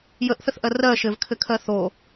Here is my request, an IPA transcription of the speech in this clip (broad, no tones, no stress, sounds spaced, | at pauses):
j ə ʔ θ ə θ ʔ ɜ r ɜ ʃ ɘ v kʰ ɘ kʰ ɜ θ o